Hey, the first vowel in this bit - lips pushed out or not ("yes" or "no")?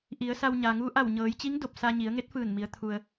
no